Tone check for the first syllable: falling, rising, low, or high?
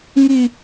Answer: high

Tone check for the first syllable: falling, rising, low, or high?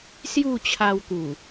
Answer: falling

